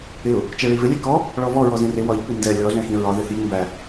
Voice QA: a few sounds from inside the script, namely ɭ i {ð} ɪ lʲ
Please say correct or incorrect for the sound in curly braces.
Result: incorrect